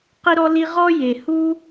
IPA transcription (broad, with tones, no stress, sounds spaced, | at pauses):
q i˥ ɾ ɔ˥ l i˥ ʁ ɔ˥ j e˧ h u˥